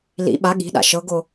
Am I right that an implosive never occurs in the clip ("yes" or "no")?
no